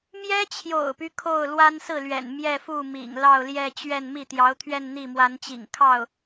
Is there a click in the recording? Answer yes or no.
no